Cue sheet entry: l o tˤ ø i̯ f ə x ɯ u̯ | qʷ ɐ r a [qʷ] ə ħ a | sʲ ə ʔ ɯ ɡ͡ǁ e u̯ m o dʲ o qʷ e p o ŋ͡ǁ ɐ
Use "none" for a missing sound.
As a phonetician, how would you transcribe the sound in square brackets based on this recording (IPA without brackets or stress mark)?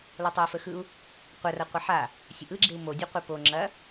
qʷ